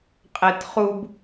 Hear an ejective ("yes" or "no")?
yes